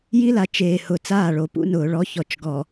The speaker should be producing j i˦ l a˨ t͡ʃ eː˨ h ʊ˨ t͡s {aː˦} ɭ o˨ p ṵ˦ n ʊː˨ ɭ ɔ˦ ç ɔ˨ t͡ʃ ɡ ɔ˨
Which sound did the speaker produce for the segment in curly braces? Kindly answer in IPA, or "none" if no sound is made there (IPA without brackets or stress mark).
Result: aː˦˨